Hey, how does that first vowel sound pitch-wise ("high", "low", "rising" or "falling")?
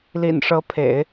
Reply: low